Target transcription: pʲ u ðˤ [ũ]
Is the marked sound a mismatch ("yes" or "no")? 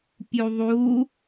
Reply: yes